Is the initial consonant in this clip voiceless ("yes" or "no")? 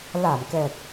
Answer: no